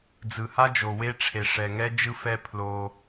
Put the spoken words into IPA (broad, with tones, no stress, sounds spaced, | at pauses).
d͡z ɯ˨ h a˦ d͡ʒ o˨ w e˦ ʈ͡ʂʰ e˨ ʂ ɛ˨ ŋ ɛ˦ d͡ʒ ɯ˦ f ɛ˦ pʰ l o˦